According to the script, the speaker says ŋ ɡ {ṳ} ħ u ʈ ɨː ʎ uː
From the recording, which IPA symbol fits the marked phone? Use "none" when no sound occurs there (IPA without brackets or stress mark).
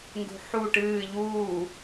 ṳ